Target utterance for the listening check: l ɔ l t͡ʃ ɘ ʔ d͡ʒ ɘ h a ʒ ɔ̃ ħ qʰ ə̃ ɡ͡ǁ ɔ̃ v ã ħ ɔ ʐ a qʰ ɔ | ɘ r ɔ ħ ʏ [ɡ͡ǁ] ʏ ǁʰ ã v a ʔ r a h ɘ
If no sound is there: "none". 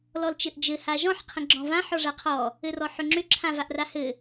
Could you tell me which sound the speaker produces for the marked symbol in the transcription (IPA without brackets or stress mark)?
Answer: ŋ͡ǁ